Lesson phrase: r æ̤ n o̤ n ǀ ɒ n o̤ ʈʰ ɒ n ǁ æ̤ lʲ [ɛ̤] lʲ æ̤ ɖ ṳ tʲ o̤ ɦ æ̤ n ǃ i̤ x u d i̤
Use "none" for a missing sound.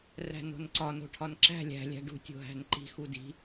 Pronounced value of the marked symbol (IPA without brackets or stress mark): æ̤